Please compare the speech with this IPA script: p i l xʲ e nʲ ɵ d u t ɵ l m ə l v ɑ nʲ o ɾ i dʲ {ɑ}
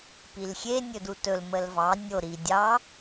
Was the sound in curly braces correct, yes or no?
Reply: yes